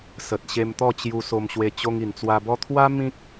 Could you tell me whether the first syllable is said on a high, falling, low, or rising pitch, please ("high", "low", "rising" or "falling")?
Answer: low